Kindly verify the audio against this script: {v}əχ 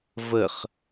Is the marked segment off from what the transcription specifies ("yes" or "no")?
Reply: no